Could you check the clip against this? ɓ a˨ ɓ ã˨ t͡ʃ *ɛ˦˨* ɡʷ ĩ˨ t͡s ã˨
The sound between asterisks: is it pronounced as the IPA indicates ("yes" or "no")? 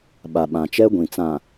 no